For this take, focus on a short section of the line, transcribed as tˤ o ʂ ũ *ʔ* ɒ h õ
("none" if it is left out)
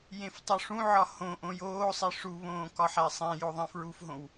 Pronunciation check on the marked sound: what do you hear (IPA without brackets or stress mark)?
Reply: ʕ